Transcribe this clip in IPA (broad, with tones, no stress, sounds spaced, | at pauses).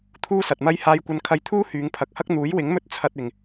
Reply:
t̪ʰ uː˥ s ɐ˨ t̚ m ɐ˥ j h aː˧ j kʷ ɐ˧ n kʰ ɐ˧ j t̪ʰ uː˥ h yː˨˧ ŋ pʰ ɐ˨˥ k̚ h ɐ˥ k̚ n̪ uː˨˥ j w ɪ˨˥ ŋ m ɵ˧ t̚ t͡sʰ ɐ˧ t̚ ɪ˨ ŋ